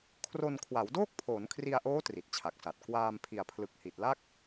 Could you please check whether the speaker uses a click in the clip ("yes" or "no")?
no